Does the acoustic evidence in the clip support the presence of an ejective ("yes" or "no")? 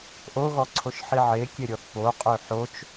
yes